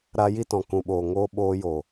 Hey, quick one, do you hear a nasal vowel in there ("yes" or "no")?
yes